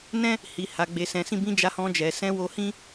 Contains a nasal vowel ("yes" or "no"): yes